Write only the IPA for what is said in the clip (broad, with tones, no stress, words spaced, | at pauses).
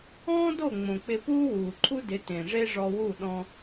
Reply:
ɔ̃ː˦do˦˨ ŋ͡mõ˨k͡pɪ˧puː˦wuː˨ ǃʰu˦dɪ˨˦tẽ˨ ʐe˦ʐɔ˧wu˦˨ ɗɔ̃˧